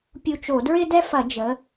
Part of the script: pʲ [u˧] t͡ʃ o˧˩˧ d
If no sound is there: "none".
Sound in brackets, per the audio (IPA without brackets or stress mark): u˧